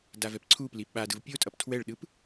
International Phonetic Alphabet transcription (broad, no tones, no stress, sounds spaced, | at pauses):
d a v ɛ p ǀʰ u p l i ɓ a d ɯ v pʲ o tʼ ʌ p tʰ w ɛ ɭ ɗ ɯ p